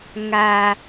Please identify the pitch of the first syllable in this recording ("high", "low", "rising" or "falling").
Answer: low